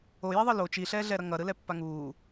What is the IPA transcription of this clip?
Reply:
o j i ðˤ ɯ l o t͡ʃ i ɬ ɛː ɮ ɛ ɾ ʌ ŋ ʌ ɾ ɯ l ɛ pː a ŋ uː

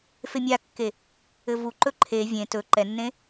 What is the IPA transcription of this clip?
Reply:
f e mʲ a kː e | ɘ v u ǃ ɵ ǃʰ e vʲ ẽ t ɵ ǃ ɛ nː ẽ

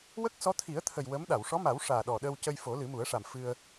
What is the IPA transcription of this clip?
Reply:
w ə˦˥ k̚ s ɔ˧˥ t̪ʰ i˨˩˦ ə̯ t̪ʰ ə˨˩ j w ə˧˥ m ɗ a˨˩˨ w ʂ ɔ˧˥ m a˨˩˦ w ʂ aː˨˩ ɗ ɔ˨˩ ɗ əː˧ w c ə˧ j f o˨˩˦ l ɨ˨˩˦ m u˨˩˦ ə̯ ʂ a˨˩ m f ɨ˧ ə̯

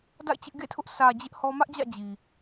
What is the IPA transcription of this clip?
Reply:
d a̰˦˨ ɪ̯ t͡ɕ ɪ˦ ʔ ɡ ḛ˦˨ tʰ ʊ˦ ʔ sʰ ä˨ d͡ʑ ɪ˦ ʔ h ɔ˦ m ä˦ ʔ d͡ʑ ä̰˦˨ d͡ʑ i˨

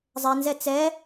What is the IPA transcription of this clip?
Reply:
zˤ ɛ n z ɛ t͡s ɛ

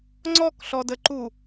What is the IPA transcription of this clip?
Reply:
ŋ͡ǀ ɔ k ɬ ɔ d ə ǃ u

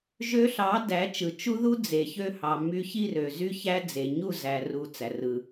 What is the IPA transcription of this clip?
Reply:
ʒ ø˧ ɬ ɑ˨˦ d æ˨˦ t͡ʃ ɯ˨ t͡ʃ u˦ ð u˦ d͡z e˨ ç ø˧ h ɑ˨ m y˧ ç i˦˨ r ø˨ z y˦ ç æ˦ d͡z e˨ ɲ u˦˨ z æ˧ r u˧ t͡s æ˨ r ɯ˨

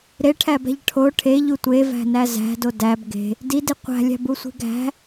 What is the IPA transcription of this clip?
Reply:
ɾ e ʈʰ æ b æ̤ ʎ ʈʰ o ʈʰ e ʎ u tʷ e v æ̤ n æ z æ̤ d o d æ b ɡ e̤ | d i d i qʷ æ̤ lʲ æ̤ b u sʷ i̤ ɡ æ̤

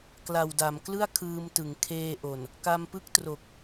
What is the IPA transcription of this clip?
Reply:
k l a˨˩ w d a˩˦ m k l ɯ˥˩ a̯ kʰ ɯː˧ m t ɯ˩˦ ŋ kʰ eː˧ ʔ o˨˩ n | k a˧ m p ɯ˥˩ k̚ t r o˨˩ k̚

